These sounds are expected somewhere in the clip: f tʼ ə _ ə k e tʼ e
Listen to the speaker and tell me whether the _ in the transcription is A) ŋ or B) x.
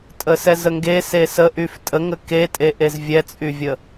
A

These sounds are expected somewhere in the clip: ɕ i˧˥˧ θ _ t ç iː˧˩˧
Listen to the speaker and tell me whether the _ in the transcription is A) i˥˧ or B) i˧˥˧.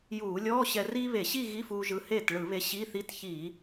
B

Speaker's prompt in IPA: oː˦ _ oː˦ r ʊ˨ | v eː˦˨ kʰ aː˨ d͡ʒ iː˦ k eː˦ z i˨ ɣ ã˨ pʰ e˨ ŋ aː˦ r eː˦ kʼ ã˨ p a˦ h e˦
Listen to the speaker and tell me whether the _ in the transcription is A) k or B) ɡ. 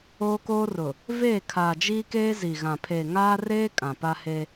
A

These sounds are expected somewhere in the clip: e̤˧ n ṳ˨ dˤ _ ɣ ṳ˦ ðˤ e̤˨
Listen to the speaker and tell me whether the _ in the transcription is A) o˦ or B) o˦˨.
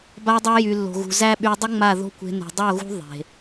B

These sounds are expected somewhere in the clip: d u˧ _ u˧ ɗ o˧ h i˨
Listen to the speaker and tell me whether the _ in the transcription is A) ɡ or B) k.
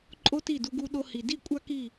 A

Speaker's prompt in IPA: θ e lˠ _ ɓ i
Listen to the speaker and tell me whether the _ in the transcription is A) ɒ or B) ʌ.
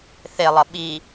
B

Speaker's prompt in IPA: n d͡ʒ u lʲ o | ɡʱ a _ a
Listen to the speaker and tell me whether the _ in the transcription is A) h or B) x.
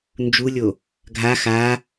B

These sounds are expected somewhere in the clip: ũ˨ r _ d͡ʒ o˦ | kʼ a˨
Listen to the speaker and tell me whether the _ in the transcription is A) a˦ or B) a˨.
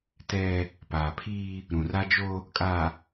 A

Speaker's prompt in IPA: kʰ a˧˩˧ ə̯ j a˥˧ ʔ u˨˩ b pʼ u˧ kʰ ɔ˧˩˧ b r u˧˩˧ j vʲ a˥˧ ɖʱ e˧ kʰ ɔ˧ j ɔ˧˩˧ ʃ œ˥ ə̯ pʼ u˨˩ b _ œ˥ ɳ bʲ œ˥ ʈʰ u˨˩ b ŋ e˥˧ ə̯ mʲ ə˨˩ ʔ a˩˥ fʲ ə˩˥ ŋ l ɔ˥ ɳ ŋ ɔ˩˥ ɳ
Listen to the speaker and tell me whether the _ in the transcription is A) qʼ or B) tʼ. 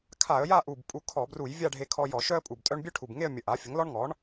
B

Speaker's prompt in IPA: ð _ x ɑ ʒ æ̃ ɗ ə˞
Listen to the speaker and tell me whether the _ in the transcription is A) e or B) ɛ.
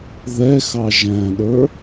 B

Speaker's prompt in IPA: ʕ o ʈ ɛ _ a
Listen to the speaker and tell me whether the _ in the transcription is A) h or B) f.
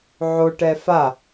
B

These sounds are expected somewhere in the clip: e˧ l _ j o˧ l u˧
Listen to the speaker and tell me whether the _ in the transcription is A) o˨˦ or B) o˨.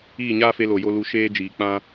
B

